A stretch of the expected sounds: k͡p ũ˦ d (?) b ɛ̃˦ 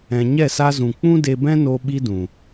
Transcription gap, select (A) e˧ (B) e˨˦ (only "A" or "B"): A